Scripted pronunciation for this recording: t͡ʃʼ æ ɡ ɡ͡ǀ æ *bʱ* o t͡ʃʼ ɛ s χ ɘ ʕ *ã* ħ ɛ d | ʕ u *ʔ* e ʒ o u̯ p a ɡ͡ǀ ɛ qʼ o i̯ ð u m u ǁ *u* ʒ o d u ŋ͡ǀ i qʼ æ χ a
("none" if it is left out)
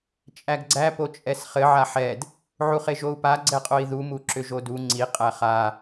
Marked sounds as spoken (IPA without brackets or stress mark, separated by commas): p, a, χ, ʏ